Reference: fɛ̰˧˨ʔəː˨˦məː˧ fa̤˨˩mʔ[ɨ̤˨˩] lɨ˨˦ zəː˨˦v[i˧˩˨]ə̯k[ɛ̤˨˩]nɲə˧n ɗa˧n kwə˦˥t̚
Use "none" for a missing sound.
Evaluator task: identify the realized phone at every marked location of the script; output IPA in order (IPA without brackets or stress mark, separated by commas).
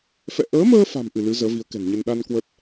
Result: ɨ˧˩, i˨˦, ɛ̤˨˩